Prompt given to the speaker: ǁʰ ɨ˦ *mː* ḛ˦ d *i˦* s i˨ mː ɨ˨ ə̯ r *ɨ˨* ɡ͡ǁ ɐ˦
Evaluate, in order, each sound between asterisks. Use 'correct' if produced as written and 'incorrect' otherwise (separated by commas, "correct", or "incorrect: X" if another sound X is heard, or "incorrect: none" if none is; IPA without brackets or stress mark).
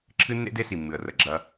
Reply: incorrect: nː, incorrect: e˦, incorrect: ə˨